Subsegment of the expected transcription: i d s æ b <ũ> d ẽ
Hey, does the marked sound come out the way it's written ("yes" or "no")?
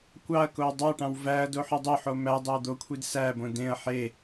no